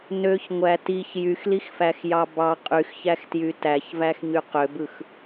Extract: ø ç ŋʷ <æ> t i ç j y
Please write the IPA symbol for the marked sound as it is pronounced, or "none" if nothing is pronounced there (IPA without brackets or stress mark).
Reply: æ